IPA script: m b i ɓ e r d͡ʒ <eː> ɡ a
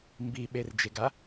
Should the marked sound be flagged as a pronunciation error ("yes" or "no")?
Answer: yes